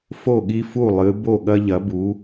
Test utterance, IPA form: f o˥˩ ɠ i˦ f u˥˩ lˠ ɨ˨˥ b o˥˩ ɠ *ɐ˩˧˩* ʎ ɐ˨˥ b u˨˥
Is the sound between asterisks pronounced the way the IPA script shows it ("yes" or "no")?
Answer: no